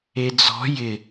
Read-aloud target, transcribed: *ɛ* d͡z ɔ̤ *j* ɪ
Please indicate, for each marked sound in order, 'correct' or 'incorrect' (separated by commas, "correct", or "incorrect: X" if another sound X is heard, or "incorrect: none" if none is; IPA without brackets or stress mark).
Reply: incorrect: e, correct